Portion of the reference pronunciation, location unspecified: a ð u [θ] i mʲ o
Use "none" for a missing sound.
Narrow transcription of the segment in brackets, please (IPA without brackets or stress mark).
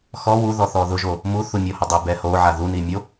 n